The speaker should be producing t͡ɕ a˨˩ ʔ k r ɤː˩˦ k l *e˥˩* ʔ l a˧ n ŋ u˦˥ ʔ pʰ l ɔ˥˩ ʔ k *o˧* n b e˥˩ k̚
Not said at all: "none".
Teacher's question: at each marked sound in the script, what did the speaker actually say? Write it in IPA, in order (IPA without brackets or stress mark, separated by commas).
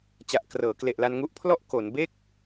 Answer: e˨˩, o˩˦